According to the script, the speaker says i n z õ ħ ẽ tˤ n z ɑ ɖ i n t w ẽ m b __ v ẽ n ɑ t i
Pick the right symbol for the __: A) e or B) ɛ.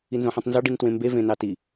A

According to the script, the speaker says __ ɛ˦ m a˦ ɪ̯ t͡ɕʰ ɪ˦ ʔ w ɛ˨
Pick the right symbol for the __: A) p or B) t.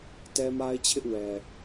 B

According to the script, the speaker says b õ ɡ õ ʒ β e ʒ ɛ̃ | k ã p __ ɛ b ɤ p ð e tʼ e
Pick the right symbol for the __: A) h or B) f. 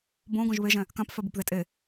B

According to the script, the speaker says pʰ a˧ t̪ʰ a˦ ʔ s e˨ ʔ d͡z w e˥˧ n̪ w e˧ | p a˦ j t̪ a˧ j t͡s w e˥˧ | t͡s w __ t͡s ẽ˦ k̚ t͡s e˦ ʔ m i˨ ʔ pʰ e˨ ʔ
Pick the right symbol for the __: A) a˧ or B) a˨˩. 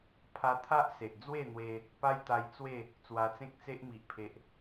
A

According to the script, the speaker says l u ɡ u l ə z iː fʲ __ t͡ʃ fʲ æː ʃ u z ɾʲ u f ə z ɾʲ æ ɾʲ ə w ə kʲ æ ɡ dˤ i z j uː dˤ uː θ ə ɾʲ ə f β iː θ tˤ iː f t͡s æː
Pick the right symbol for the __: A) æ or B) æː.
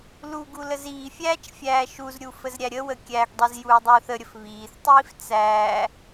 B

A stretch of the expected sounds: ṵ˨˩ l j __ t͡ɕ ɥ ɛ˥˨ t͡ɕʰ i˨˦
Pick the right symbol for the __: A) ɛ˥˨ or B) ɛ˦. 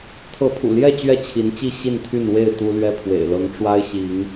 A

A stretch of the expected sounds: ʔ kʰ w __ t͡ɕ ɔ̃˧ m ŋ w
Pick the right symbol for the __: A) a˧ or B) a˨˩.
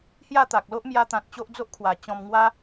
B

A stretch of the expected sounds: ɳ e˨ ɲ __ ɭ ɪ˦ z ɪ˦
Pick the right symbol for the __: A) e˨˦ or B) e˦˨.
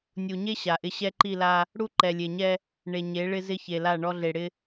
A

